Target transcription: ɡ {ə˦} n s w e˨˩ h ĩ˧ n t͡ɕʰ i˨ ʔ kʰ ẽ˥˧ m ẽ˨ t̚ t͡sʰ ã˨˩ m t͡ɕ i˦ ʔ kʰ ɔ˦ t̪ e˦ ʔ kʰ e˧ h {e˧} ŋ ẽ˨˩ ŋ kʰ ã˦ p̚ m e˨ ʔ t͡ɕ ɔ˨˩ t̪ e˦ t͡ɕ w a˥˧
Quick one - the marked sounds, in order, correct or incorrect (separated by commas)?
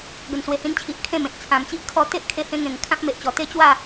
incorrect, incorrect